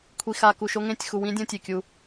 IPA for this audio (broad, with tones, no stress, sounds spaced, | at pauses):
kʷʰ i˨ x a˨ k u˨ ʃ o˦ ŋ ẽ˦˨ tʲ x u˨ w ĩ˦ dʲ õ˦ tʲ e˨ kʲ u˦